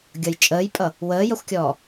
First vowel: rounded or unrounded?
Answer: unrounded